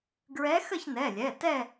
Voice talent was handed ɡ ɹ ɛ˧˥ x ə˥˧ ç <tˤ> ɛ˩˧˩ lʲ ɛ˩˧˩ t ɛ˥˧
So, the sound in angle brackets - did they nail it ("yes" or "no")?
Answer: no